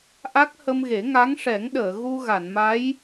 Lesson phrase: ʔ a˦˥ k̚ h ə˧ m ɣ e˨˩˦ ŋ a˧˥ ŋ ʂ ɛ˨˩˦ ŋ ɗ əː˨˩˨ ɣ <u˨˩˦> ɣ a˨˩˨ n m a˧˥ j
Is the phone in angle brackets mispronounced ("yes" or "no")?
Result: yes